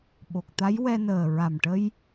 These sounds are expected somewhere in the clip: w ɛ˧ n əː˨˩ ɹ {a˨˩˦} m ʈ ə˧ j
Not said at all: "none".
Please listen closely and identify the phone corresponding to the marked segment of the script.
a˨˩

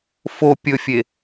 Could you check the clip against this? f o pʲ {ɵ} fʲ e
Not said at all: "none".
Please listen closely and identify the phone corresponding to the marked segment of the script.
ɵ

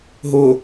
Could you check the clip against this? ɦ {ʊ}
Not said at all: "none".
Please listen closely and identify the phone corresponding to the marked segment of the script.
ʊ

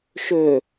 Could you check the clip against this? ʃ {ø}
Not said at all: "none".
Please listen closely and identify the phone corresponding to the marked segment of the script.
ø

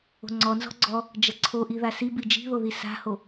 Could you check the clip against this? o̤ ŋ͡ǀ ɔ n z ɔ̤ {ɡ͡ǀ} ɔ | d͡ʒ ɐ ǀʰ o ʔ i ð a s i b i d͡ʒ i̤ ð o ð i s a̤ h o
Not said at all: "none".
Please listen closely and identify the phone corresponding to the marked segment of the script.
ɡ͡ǀ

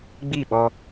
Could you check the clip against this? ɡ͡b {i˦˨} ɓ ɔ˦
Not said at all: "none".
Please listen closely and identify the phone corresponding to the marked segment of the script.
i˦˨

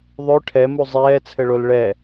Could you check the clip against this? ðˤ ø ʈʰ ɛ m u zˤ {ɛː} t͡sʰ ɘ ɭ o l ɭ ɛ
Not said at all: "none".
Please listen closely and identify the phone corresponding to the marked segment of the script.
ɛː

